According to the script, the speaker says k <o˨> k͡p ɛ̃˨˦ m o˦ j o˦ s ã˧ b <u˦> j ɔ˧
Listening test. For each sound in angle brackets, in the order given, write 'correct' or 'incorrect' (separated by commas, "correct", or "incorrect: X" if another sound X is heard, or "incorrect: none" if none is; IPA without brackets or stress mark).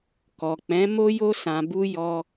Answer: incorrect: ɔ˨, correct